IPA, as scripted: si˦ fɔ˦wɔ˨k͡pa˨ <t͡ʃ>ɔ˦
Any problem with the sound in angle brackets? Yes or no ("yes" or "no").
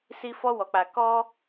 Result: yes